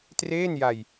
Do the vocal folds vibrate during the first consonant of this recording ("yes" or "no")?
no